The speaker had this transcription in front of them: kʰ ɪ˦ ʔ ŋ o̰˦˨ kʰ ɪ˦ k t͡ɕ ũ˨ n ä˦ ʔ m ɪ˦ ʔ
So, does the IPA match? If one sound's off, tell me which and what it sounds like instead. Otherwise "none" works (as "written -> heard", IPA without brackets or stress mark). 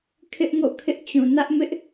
k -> ʔ